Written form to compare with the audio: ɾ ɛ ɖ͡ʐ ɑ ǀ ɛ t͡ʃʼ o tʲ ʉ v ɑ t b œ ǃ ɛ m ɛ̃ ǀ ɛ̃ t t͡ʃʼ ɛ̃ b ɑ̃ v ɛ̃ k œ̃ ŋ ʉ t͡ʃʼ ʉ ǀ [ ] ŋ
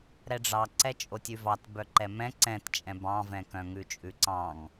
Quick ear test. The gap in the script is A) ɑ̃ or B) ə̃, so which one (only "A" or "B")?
A